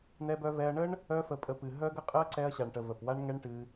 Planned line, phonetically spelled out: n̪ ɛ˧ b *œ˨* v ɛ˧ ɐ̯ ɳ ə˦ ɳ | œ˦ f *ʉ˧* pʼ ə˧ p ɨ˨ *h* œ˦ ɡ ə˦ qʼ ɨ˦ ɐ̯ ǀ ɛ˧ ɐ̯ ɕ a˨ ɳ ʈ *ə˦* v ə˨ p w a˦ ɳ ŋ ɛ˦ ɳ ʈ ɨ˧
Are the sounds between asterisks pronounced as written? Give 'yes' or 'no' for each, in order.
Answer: no, no, no, no

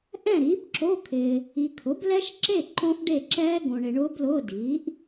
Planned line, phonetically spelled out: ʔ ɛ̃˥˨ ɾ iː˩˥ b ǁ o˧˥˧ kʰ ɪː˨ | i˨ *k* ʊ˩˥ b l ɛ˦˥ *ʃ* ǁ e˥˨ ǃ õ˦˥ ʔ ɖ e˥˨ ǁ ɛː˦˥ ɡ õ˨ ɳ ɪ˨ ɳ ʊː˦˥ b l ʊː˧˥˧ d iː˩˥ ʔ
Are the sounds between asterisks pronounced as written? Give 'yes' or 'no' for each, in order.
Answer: no, yes

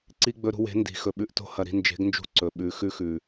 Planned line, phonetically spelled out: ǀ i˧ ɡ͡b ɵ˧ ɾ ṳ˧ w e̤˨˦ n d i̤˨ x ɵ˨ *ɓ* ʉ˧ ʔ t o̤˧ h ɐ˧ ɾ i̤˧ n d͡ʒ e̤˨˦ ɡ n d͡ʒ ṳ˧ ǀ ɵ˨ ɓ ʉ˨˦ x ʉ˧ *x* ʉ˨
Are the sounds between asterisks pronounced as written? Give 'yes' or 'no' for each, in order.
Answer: yes, yes

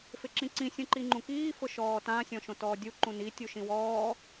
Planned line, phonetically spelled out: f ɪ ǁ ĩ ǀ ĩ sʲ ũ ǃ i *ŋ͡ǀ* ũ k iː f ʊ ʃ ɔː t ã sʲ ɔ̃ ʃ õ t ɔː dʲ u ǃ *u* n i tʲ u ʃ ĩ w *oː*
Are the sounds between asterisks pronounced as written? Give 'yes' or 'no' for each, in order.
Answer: no, no, no

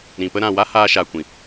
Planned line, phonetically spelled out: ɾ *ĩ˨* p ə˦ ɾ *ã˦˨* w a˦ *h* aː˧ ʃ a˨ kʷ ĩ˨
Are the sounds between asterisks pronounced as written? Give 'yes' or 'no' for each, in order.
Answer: yes, yes, yes

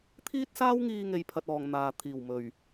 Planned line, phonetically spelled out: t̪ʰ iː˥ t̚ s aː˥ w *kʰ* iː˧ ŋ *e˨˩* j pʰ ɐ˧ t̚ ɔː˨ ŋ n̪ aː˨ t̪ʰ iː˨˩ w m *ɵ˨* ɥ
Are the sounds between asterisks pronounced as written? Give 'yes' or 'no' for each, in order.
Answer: no, no, no

